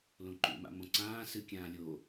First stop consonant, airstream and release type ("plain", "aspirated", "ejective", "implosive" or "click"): click